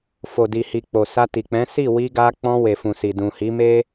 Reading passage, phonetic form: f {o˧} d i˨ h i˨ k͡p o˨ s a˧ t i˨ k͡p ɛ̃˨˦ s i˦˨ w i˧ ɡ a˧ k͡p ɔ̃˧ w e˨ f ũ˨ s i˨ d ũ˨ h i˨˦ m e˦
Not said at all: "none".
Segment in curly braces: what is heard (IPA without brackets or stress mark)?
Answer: o˨